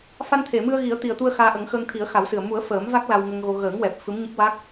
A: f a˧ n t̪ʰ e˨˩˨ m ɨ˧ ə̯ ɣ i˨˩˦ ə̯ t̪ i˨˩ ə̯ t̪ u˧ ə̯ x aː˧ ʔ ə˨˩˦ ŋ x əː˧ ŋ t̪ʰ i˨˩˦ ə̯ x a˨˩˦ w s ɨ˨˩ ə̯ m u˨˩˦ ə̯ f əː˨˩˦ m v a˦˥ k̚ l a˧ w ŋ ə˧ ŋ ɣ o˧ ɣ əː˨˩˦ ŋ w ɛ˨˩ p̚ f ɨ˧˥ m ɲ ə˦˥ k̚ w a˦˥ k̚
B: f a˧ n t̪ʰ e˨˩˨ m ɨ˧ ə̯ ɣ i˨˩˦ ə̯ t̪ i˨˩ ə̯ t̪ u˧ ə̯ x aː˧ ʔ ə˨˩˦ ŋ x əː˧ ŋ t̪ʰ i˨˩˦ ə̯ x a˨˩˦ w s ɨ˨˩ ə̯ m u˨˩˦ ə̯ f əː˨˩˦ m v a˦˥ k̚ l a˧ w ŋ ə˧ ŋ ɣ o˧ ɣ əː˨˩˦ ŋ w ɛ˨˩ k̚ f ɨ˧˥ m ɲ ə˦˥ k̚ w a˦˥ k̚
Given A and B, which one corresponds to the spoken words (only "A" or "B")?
A